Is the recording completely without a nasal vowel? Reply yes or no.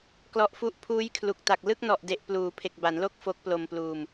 yes